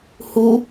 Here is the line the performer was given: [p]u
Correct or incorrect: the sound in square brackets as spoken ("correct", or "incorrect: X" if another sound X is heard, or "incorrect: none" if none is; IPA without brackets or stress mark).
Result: incorrect: h